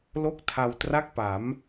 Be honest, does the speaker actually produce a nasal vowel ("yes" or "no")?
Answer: no